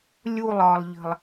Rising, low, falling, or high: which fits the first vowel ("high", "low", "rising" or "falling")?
falling